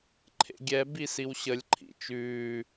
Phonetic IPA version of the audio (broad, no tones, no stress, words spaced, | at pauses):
ǃʰḛɡʲɛ bisiwɕəlʲ ǃʰḭt͡ʃʉː